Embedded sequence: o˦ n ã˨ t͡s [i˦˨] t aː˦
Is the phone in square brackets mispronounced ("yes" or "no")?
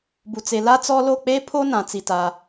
no